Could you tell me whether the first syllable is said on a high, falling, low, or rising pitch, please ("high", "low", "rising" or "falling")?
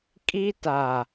high